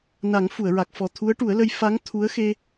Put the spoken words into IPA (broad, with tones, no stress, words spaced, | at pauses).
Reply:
na˨˩˦ŋfu˨˩˨ə̯ɹa˨˩k̚fɔ˨˩ t̪ʰu˧˥ə̯ʈu˨˩˦ə̯lə˧˥j fa˧˥ŋ t̪ʰu˧˥ə̯ xe˧